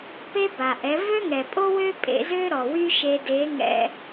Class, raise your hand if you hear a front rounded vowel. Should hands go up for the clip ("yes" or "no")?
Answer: yes